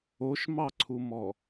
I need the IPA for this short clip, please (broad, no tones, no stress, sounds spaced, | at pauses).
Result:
o ʃ m ɑ ǀʰ u m ɔ